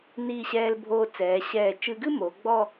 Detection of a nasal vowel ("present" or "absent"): absent